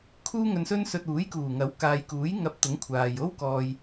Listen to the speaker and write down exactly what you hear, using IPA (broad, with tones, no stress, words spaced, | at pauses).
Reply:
kʰuː˥ŋɵ˧nsɵ˥n sɵ˧t̚ uː˨˥jkuː˨˩ ŋɐ˨˥wkaː˨jkuː˨˥j ŋɐ˧p̚t̪ʊ˨˥ŋ kʷʰaː˨j o˥wkɔː˨j